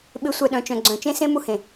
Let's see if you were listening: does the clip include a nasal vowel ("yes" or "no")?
yes